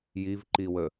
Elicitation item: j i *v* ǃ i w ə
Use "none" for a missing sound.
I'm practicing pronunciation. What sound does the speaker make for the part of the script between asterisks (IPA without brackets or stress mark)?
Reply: v